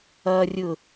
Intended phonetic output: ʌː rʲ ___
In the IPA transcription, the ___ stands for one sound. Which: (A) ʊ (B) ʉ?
A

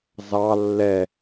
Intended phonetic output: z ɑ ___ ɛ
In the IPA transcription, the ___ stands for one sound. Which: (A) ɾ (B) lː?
B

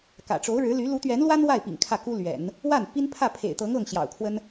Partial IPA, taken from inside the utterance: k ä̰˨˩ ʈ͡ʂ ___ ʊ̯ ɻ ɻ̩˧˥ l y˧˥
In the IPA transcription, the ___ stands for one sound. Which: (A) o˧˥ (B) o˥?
A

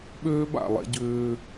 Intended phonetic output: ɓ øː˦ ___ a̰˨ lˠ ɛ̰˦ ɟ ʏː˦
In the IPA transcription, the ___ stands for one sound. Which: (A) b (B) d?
A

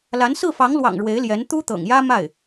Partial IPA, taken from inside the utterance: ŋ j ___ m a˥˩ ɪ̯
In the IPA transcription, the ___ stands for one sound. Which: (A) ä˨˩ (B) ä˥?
B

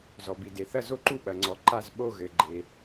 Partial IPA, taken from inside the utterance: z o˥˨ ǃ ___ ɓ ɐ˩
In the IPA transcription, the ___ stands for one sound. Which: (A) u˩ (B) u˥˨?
B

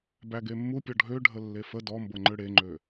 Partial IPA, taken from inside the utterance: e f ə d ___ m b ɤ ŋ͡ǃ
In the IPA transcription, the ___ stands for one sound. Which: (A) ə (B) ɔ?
B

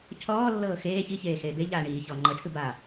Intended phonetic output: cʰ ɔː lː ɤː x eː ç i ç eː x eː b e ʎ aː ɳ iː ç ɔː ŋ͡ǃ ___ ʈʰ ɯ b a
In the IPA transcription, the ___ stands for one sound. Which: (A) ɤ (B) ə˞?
A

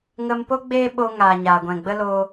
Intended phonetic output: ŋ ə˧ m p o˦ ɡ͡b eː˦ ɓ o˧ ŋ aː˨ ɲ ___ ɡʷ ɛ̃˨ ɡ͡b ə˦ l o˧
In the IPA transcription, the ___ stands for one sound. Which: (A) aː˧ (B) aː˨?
B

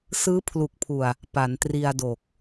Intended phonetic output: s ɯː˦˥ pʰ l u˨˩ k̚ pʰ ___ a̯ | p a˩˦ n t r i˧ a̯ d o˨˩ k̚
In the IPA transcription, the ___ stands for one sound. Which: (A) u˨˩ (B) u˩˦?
A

